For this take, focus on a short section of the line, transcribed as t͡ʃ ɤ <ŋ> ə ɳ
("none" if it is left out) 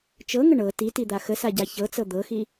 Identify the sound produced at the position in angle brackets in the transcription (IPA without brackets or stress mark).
ŋ